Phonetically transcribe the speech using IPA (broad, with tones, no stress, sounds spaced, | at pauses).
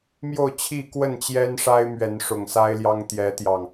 m j o˥˨ ʊ̯ t͡ɕʰ i˥˨ k w ə˥˨ n t͡ɕ j ɛ˦ n ʂ a˦ ɪ̯ m ɥ ɛ˨˦ n ʂ ʊ˨˩ ŋ s a˦ ɪ̯ l j ɑ˦ ŋ t̪ j ɛ˨˦ t̪ j ɑ˨˩ ŋ